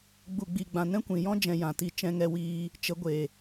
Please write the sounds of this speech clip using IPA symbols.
ɡ͡b u˨ ɡ͡b i˨ ɡ͡b ã˨ n ɛ̃˦ kʷ ĩ˨ j ɔ̃˦ d͡ʒ ɛ̃˧ j ã˨ t i˨ t͡ʃ ɛ̃˧ ŋ ɛ˧ w iː˧ | t͡ʃ ə˨˦ ɡʷ e˨

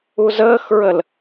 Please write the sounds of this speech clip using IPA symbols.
u z əː x ɹ ə l

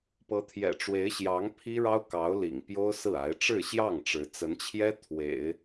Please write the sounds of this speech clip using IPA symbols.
p ɤ˧˥ t̪ʰ j ɛ̰˨˩ ʈ͡ʂ w e˧˥ ɪ̯ ɕ j ɑ˧˥ ŋ pʰ i˥ ɻ ɑ˥ ʊ̯ k ɑ˧˥ ʊ̯ l ḭ˨˩ ŋ p j o˥ ʊ̯ s ɹ̩˥˩ a˧˥ ɪ̯ ʈ͡ʂ ɻ̩˥˧ ɕ j ɑ˥˩ ŋ ʈ͡ʂ ɻ̩˧˥ t͡s ə˧˥ n t͡ɕʰ j ɛ˥ t̪ʰ w ḛ˨˩˦ ɪ̯

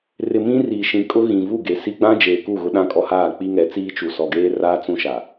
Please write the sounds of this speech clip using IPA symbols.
r ɪ˨ m ĩ˦ r iː˨ ʃ ĩ˨ kʼ ʊ˦ ɣ ĩ˨ v u˦˨ ɡ e˨ s i˦ ɡ͡b ã˦ d͡ʒ eː˨ k u˦˨ ɣ ʊ˦ ɗ ã˦ kʼ ɔ˦ h aː˦˨ k͡p i˦ ŋ ɛ˨˦ t͡s iː˦ t͡ʃ u˨ s ɔ˨ ɡ eː˦ r aː˦ t͡s ũ˦ ʃ a˨

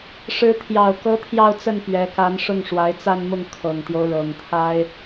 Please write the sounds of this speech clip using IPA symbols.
ʂ ɻ̩˧˥ t̪ʰ j ɑ˨˩ ʊ̯ k ɤ˧˥ t̪ʰ j ɑ˥˧ ʊ̯ t͡s ə˥˩ n p ɥ ɛ˧˥ k a˧˥ n ʂ ʊ˥˩ ŋ ʂ w a˧˥ ɪ̯ t͡s a˥˧ n m ʊ˥˩ ŋ kʰ ɤ˨˩ ŋ t̪ j o˦ ʊ̯ ɻ ɤ˨˩ ŋ t̪ʰ a˥ ɪ̯

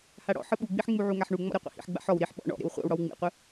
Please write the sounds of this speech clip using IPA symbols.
h a ɽ ɔ̰ ħ ɯ ɓ u ɡ͡b i ħ ŋ͡m u ʕ u ŋ a ħ ɳ u ŋ͡m ɔ̰ ɾ e qʷ ḛ h ḭ ħ ɡ͡b a̰ ħ ɔ w ɾ i ħ ɓ ɔ̰ ɳ ɔ̰ ɾ ḛ w χʷ a̰ w ɽ ɔ w ŋ͡m ḭ qʷ ɯ

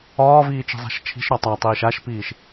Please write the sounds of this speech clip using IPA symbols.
ɒː v iː t͡ʃ i̤ zˤ a̤ ʃ t͡ʃʰ i̤ ʃ ɾ ɒ tˤ a tˤ iː ʃ a ʃ p iː ʃ

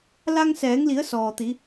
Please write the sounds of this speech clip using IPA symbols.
l a˧ ŋ s ɛː˩˧ ŋ l i˩˧ ə̯ s ɔː˩ t̪ i˩˧

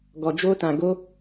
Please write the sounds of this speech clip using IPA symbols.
ɡ ɔ˧ d͡ʒ o˦ t ã˧ ɡ o˦

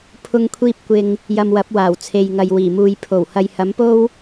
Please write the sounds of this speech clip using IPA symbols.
pʰ ʊ˧ ŋ kʷʰ iː˧ p̚ kʷ ɪ˨ ŋ | j ɐ˧ m w ɐ˨˥ p̚ w aː˨˩ w t͡sʰ e˨ j ŋ ɐ˨ j w iː˨˩ m uː˨ j pʰ o˨˩ w h ɐ˨ j h ɐ˨˥ m p o˥ w

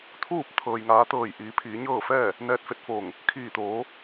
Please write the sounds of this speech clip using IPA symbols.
t̪ʰ uː˥˨ p̚ t̪ʰ ɤː˩ j ŋ aː˩˧ t̪ ɤː˧˩ j ʔ iː˩˧ pʰ iː˩˧ ɲ ɤː˥˨ f ɛː˥˨ | n ɛː˧ t̚ f e˧˥ t̚ f oː˧˩ ŋ | kʰ iː˧˩ t̪ oː˩˧

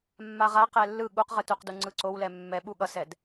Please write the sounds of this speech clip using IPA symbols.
mː a ʁ a q ɛ lː ɯ ɠ u q ʁ ɯ t u q d u ŋ͡ǀ ɯ ǀ o w l ɛ mː ɛ ɓ u ɠ ʌ s ɛ d

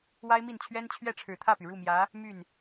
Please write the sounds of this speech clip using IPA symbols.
w a˥ ɪ̯ m i˥˩ n t͡ɕʰ ɥ ɛ˥ n t͡ɕʰ ɥ ɛ˥˩ ʈ͡ʂʰ ɻ̩˨˩ t̪ʰ ä˥˩ p y˩ ɻ u˥˩ m j ä˧˥ | m y˥˩ n

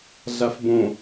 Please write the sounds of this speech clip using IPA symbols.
ɮ a f b õ

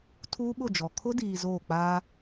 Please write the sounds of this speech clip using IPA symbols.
tʰ uː˦ ɓ ʊ˦˨ d͡ʒ ɔ˨ kʰ ʊ˦ d iː˨ z oː˦˨ k͡p aː˦

